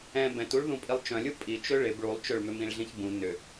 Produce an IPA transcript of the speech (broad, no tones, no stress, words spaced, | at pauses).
ɛ̃ bɛ̃tuɭ ðũpʼilˠt͡ʃœ̃lʲu pʼit͡ʃø ɭɪb ɭulˠt͡ʃøɭmʏ mĩɭɮĩçbũ nʏ